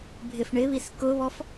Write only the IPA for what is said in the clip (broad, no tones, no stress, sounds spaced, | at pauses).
bʱ ɪ f ɳ ɪ β i s k ʊ β ɔ f